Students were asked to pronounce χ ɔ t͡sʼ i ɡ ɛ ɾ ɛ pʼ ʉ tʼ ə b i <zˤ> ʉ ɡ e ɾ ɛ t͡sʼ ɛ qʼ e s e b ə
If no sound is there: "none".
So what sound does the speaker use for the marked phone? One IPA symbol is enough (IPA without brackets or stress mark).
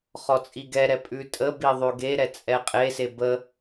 ðˤ